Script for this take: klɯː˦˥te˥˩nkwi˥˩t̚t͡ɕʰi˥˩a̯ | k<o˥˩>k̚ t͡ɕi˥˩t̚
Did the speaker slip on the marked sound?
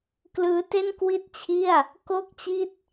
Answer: no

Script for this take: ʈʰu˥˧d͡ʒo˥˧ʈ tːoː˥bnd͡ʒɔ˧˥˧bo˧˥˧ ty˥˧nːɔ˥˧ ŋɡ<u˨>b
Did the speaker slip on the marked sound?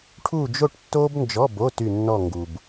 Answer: no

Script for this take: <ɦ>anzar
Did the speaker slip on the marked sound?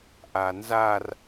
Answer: yes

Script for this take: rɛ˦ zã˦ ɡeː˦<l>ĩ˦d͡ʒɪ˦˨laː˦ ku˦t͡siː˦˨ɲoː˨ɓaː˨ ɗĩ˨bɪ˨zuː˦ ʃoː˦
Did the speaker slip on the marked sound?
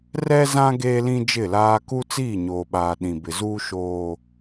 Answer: no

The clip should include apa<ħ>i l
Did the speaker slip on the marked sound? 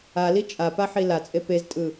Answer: no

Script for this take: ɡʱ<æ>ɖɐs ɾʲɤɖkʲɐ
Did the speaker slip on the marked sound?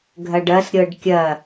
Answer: yes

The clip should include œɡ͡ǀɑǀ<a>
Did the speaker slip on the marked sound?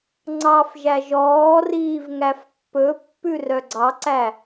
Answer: yes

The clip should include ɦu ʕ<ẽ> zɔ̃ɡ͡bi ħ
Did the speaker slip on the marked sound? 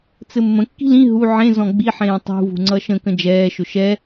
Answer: no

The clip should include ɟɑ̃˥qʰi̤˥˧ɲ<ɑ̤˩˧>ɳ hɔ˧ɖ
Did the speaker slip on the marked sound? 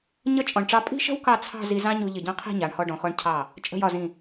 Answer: yes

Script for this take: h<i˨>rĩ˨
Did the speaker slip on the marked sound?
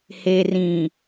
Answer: yes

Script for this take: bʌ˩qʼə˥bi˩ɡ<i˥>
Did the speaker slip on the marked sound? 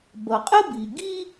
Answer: no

